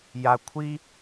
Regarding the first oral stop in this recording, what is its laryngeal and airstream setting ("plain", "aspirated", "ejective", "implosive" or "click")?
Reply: aspirated